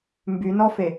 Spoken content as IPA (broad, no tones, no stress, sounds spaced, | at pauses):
m b y n ɔ f e